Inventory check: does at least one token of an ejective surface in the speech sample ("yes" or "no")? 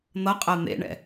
yes